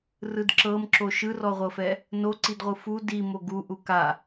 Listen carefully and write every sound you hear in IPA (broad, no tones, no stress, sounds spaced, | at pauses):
r ɯ d ǁ ɤ m ǁ o ʃ ɯ r ɔ ʁʷ ɤ f ɛ | n o ǀ i d ʁʷ ɯ f u d i m o ɡ u ʔ u k a